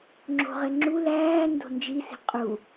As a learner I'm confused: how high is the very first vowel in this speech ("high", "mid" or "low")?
mid